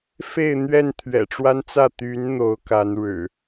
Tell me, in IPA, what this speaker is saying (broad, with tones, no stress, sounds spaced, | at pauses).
f e˥˨ ɪ̯ n̪ ɥ ɛ˥˨ n t̪ʰ ɥ ɛ̰˨˩ ʈ͡ʂ w a˦ n t͡s ä˥˨ t̪ y˨˦ n n̪ o˨˦ ʊ̯ k a˨˦ n ɻ ɻ̩˨˩